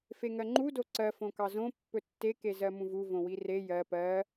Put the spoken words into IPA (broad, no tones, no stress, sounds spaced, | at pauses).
f e ŋ ɜ ŋ͡ǃ u d o ǀ ɜ f õ k ɑ z õ pː ɵ tː e k e z ɜ m ũ v u v õ w i r e j ɜ p ɜ